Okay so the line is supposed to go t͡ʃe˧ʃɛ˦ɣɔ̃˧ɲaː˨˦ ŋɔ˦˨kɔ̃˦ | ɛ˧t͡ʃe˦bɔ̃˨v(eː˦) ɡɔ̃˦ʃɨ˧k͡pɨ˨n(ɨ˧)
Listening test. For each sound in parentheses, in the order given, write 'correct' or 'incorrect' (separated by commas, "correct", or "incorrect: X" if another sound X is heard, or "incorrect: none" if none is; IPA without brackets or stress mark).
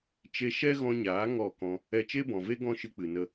incorrect: e˦, incorrect: ə˧